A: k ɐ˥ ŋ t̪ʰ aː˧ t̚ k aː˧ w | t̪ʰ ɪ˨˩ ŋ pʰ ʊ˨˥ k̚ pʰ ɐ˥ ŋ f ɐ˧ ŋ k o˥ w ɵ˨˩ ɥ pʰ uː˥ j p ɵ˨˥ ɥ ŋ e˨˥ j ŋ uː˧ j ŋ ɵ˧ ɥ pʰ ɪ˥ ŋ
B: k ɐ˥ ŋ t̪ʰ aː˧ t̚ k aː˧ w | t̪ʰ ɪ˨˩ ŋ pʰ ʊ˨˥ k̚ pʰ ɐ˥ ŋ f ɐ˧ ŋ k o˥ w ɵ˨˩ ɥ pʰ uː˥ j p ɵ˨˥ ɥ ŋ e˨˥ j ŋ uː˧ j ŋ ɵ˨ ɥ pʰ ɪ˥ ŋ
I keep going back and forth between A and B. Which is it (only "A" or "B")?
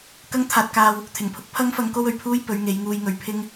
B